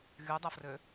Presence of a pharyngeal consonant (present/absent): absent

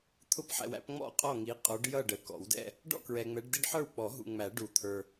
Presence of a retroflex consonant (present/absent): present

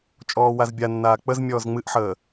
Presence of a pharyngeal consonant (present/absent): present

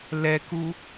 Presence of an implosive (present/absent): absent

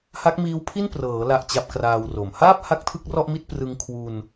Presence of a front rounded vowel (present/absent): absent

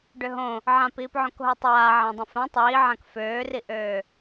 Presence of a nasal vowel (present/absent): present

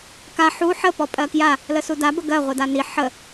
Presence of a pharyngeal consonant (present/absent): present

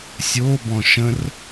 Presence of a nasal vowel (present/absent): present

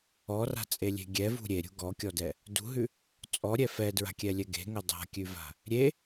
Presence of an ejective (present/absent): present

